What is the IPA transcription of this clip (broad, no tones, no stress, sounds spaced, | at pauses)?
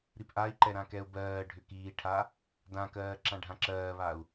ɾ i p ʔ a i̯ ǃ ɛ ɾ ã k ɛ u̯ b ɜː ɖʱ ʏ k iː ʈʰ a | d ã k ɜː ǁ ã ɖʱ ã ǁ ɜː β a u̯